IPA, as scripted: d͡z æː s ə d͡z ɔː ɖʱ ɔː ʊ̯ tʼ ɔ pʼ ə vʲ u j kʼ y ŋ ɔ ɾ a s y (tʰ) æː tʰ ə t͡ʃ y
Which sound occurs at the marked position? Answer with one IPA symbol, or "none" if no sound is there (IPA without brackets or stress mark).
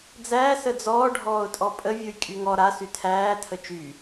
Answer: tʰ